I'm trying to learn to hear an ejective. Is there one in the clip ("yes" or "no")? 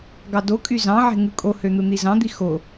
yes